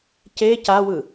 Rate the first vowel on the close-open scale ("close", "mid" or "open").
mid